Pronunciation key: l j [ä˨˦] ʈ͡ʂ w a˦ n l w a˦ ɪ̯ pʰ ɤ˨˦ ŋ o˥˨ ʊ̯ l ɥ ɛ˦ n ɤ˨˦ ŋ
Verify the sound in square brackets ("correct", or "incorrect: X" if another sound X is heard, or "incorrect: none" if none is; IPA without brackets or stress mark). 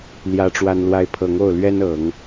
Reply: incorrect: ä˦